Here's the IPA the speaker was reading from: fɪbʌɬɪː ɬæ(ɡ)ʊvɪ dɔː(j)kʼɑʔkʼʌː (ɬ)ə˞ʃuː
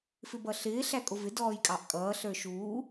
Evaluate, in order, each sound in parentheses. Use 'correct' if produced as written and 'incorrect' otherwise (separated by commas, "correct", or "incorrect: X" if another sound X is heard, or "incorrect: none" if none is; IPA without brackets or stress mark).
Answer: incorrect: kʼ, correct, correct